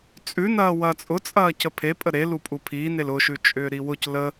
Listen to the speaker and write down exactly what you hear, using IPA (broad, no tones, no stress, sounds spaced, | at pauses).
t͡sʼ ʉ n ɐː w ɐː t͡sʼ ʊ t͡sʼ ɐː c ə pʰ e pʼ ə ɾ e l u pʼ u pʰ iː n e l ʊ ʃ ʉ t͡ʃʼ ʏː ɾ i w ʊ c l ə